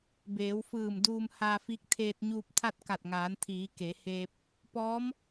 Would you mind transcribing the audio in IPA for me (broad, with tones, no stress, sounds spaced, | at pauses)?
b eː˩˧ w f ɯː˧˩ m d uː˧ m h aː˧ f iː˧˥ k̚ t̪ʰ eː˧ t̚ ɲ uː˧ p̚ t̪ʰ a˥˨ t̚ k a˧˩ t̚ ŋ aː˩˧ n t̪ʰ iː˩˧ k e˩˧ h eː˧ p̚ | p ɔː˧˥ m